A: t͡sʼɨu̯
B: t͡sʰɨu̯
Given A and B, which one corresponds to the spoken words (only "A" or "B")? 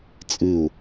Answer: A